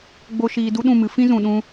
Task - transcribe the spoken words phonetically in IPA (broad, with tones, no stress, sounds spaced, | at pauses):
ɡ͡b o˦ ʃ iː˧ d u˦ ɗ ũ˦˨ m ɨ˨˦ f ĩ˦ z ũ˨ ɗ ũ˧